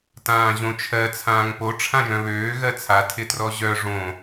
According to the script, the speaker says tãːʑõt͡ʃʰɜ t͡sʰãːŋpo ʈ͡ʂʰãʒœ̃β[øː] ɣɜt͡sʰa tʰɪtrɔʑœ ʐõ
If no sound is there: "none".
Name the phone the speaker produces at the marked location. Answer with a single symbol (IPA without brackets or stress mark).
øː